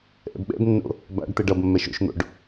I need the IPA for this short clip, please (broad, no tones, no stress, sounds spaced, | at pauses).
ʔ ɛ̰ b ɓ ɛ̰ b nː o̰ | b a̰ ɖ t̪ ɛ ɖ ʌ b mː ɛ ʃ o̰ ʃ n̪ o̰ ɖ